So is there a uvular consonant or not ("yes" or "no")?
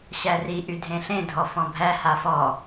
no